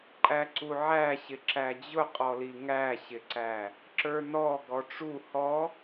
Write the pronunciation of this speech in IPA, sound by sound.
ǃʼ æ ǀ u ʕ æ ɕ ɪ ǁ æ d͡ʑ ʊ qʼ ɔ l i ŋ æ ɕ ɪ ǀ æ | ǁ ə˞ n ɔ ɡ ɔ ʈ͡ʂ u h ɔ

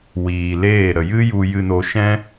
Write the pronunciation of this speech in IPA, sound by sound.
w iː˨ l eː˦˨ ɾ ə˨ j ɨ˦ j u˧ j ɨ˧ n o˧ ʃ ɛ̃˦

